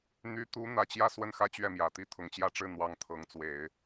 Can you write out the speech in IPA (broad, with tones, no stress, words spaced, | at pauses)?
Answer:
n̪y˧˥t̪u˧˥ n̪ä˧˥t͡ɕjä˥ swə˥˩nxä˥ t͡ɕɥɛ˥˩mjä˨˩t̪i˥ t̪ʰʊ˨˩ŋt͡ɕjä˥˧ʈ͡ʂɻ̩˥˩ n̪wɑ˧˥ŋ t̪ʰɤ˧˥ŋt͡swe˨˩˦ɪ̯